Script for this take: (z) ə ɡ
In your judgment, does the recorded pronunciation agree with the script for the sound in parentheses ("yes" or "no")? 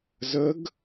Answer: yes